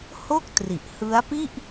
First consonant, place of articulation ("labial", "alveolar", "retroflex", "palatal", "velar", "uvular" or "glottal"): glottal